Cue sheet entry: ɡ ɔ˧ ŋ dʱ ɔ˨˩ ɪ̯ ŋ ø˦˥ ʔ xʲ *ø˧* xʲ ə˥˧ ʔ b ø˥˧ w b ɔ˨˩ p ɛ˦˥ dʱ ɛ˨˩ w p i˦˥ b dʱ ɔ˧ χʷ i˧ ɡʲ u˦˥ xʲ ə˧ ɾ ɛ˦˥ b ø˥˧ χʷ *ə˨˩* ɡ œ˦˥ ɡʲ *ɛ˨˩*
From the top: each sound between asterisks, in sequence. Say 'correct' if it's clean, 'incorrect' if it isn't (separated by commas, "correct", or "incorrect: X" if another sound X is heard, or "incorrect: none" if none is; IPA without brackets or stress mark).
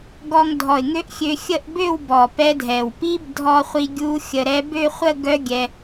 correct, incorrect: ə˥˧, incorrect: ɛ˧